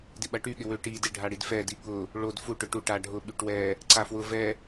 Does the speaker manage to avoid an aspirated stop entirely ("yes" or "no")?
yes